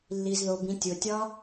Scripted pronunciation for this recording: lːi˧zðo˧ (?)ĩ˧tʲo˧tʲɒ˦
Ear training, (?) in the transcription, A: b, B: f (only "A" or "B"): A